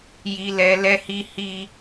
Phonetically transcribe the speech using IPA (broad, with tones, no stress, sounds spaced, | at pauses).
j i˨ l ɛ˨ l ɛ˧ h i˧ h i˧